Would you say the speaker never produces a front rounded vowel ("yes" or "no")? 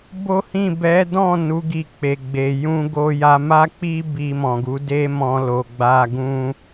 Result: yes